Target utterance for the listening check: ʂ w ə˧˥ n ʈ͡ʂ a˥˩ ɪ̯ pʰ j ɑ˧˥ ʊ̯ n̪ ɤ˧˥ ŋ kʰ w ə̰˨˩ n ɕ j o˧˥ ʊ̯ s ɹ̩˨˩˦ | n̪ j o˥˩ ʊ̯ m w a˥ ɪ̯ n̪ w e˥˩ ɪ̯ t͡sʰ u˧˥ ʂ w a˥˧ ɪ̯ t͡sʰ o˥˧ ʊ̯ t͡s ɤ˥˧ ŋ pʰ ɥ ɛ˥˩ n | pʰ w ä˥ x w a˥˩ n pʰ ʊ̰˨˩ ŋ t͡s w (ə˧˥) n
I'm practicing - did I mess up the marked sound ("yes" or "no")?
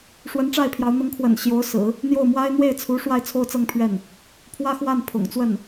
yes